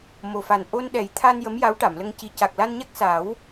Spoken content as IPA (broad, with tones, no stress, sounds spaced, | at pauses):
m o˨˩ f a˨˩ n ʔ o˧ n ɗ ɛ˨˩˦ j t̪ʰ a˧ n j ə˧˥ m j a˧˥ w ʈ a˨˩˨ m l ə˧ ŋ c i˨˩ c a˨˩ k̚ l a˧ n ɲ a˦˥ k̚ s a˨˩˦ w